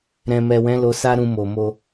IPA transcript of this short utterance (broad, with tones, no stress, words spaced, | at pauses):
ɾɛ̃˨mɛ˨wɛ̃˨˦ lo˧sa˦ ɾũ˧mo˨mo˧